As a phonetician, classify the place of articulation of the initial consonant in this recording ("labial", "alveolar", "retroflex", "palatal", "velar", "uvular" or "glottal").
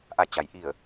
glottal